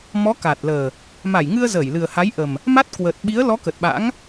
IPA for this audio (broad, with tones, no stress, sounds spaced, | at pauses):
m ɔ˨˦ k aː˨˩ t̚ l əː˨˩ | m a˧˩ j ŋ ɨ˧ ə̯ z əː˧˩ j l ɨ˨˩ ə̯ h a˨˦ j ʔ ə˨˩ m | m a˦˥ t̚ k w əː˨˩ t̚ ɓ i˨˦ ə̯ l ɔ˨˦ k ə˨˩ t̚ ɓ a̰˧˥ ŋ